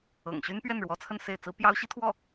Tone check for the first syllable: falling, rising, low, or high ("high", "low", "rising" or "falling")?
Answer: low